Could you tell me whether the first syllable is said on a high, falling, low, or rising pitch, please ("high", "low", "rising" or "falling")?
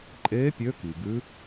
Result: rising